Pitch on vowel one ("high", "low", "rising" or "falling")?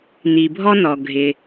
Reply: low